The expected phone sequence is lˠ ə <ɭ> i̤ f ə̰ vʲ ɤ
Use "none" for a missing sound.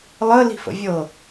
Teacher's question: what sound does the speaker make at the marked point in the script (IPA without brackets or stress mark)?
l